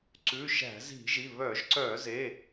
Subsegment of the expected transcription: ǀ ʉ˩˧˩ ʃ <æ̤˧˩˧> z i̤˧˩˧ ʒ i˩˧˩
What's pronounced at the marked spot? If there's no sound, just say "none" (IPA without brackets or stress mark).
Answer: æ̤˧˩˧